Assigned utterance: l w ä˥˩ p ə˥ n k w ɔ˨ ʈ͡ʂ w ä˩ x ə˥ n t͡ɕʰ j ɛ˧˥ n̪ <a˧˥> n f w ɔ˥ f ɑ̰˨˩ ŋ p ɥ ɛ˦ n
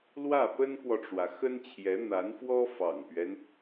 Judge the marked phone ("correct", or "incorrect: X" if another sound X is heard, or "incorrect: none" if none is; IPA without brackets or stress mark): correct